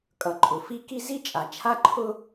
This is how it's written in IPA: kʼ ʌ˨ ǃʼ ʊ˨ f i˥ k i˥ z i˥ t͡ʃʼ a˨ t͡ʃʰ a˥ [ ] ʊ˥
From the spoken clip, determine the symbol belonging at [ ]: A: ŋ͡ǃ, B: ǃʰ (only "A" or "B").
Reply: B